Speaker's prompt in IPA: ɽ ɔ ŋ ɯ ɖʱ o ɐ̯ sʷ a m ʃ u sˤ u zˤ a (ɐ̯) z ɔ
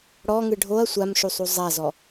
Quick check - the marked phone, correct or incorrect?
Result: incorrect: none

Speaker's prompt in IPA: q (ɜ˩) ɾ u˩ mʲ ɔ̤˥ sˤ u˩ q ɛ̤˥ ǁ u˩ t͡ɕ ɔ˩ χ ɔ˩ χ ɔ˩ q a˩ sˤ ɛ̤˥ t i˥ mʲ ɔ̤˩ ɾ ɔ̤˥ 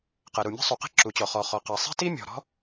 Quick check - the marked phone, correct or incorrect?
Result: correct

